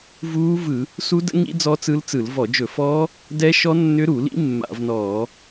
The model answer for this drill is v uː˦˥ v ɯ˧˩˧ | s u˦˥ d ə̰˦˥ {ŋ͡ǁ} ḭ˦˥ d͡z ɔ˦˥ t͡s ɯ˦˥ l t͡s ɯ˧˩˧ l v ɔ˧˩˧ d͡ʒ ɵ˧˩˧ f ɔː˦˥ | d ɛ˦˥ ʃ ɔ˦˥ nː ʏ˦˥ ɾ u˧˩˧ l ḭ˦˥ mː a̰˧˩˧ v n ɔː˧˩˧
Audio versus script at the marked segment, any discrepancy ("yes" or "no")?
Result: yes